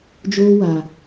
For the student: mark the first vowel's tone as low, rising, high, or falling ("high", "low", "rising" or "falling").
high